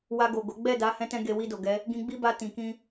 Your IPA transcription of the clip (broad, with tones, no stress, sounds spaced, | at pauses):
w a˧ ɡ o˨ ɡ o˨˦ ɡ͡b ɛ˦˨ d a˨˦ h ɛ̃˧ t ɛ̃˧ ɡ e˧ w i˧ d o˨ ɡ ɛ˨˦ | ɡ ĩ˧ ɡ͡b i˦ b a˧ t ĩ˨ k ĩ˧